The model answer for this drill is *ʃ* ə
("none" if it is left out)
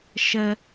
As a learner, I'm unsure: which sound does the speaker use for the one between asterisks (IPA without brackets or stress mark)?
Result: ʃ